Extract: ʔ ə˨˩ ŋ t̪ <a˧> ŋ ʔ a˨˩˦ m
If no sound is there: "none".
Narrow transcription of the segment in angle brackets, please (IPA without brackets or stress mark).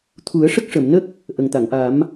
a˨˩˨